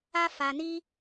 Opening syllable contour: high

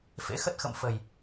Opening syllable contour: rising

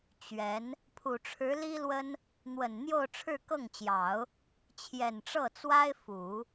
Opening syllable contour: rising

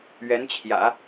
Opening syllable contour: rising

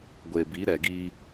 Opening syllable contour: low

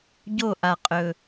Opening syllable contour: falling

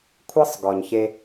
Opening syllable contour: high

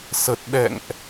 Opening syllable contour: low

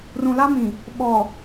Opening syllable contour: low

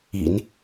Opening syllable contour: low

